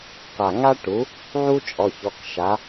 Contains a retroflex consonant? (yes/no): yes